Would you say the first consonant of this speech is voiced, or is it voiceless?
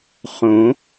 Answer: voiceless